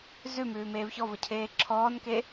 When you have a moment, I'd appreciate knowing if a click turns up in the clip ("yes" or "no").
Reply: yes